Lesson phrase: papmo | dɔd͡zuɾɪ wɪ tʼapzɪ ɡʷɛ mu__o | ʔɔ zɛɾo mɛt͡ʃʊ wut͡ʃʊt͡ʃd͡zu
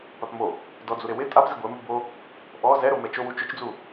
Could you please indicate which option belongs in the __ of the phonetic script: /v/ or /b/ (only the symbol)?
b